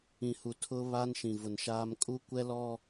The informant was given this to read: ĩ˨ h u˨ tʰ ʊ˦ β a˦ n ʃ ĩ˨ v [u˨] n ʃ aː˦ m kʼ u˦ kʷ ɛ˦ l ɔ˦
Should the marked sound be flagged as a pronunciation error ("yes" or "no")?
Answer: yes